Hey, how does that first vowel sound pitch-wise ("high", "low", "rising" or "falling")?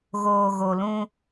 low